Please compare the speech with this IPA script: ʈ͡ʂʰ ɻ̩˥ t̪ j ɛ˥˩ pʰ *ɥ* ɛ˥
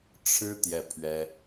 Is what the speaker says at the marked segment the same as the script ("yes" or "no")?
yes